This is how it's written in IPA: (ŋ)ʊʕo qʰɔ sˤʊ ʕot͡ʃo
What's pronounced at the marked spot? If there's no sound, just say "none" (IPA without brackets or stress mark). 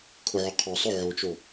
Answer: kʰ